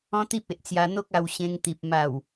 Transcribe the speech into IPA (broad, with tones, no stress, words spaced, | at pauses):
ɔ̃˦t̪i˦p̚e˨ʔt͡sja˧ n̪o˦k̚ a˧w ɕẽ˧ŋt̪i˨p̚ ma˨˩w